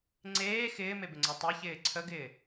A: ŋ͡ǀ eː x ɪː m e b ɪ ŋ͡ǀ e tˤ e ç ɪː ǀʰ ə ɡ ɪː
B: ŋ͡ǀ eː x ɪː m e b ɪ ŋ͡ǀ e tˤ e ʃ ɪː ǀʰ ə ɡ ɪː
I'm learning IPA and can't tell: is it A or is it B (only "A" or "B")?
A